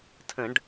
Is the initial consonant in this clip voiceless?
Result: yes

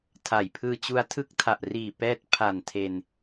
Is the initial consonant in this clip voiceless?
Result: yes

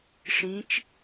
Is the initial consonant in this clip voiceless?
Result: yes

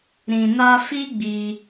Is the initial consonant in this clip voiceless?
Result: no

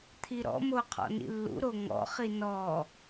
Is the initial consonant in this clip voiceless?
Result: yes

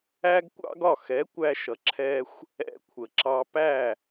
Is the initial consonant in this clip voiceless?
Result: no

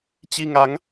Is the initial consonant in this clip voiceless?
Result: yes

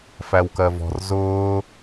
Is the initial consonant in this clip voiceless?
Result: yes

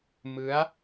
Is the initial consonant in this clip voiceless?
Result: no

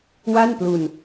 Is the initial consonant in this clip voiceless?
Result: no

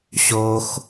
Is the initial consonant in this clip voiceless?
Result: yes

